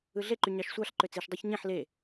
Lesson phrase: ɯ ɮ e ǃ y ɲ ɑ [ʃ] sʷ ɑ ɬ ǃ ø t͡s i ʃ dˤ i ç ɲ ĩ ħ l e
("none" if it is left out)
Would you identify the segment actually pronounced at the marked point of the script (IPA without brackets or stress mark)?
ʃ